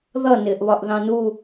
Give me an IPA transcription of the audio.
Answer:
ð ʌ n ɪː ʔ β ɒ ʔ ð ɑ̃ n u

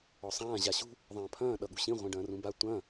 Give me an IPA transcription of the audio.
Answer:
ɔ sˤ ãː ʑ a ɕ ṳ | ðˤ ɐ̃ː pʰ ɐ̃ː ɗ ʌ ɠ ṳ ɕ ĩ ʁʷ ɛ̃ ɖ ɐ̃ː r ũ b a tʷ ɐ̃

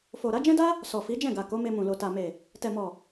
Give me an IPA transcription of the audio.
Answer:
f o˨ ɾ a˨˦ d͡ʒ ɛ̃˦ d a˦ | s ɔ˨ f i˨˦ d͡ʒ ɛ̃˦˨ ɡ a˨ k o˨˦ m e˧ m ũ˨ l o˨ t a˨ m e˨ | t ɛ˨ m ɔ˨

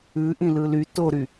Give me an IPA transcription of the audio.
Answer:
ʉ ʔ ĩ l ɯ l y t o ɾ y

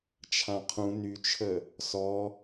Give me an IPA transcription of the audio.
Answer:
t͡ʃʰ ã qʰ ũ n y t͡ʃʰ ə | s ɔ

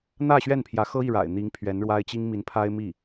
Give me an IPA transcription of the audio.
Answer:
n̪ ä˥˧ ɕ ɥ ɛ˥˩ n pʰ j ä˧˥ x ɤ˥ i˥˩ ɻ a̰˨˩ ɪ̯ n̪ i˧˥ ŋ pʰ ɥ ɛ˧˥ n ɻ w a˥ ɪ̯ t͡ɕ i˥ ŋ m i˧˥ n pʰ a˥ ɪ̯ m i˥˩

